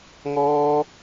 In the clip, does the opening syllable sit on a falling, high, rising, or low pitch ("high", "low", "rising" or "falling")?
high